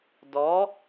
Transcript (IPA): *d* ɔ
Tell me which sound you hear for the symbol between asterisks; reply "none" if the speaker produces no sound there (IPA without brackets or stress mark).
d